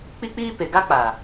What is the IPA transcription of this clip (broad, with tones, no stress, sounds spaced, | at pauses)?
k͡p i˦ k͡p iː˦ p e˨ ɡ a˦ k͡p a˨